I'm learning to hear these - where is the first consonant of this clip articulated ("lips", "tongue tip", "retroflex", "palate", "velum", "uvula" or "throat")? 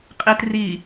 uvula